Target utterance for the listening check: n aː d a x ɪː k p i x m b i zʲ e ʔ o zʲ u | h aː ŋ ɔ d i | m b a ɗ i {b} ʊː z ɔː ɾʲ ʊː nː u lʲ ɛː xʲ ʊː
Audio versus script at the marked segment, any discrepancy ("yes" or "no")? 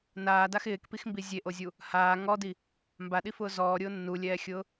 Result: yes